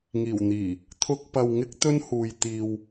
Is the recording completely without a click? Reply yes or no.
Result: yes